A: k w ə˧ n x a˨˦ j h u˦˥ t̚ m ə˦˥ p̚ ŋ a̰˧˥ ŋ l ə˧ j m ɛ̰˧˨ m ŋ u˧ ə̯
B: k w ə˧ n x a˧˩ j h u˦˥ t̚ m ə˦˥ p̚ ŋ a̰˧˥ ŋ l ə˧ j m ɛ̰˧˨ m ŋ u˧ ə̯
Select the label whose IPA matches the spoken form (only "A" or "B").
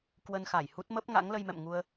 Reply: B